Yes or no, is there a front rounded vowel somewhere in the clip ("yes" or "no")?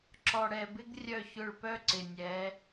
yes